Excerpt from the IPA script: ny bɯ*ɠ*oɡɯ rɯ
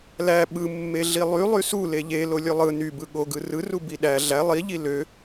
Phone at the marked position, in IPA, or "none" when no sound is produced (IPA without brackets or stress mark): ɠ